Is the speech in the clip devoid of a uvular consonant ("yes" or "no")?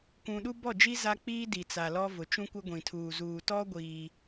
yes